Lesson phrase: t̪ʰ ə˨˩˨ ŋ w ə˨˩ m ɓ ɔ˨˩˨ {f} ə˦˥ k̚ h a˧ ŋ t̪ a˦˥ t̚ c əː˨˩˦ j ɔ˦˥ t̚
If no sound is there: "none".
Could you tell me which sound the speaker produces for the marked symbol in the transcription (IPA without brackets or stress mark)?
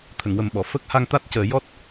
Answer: f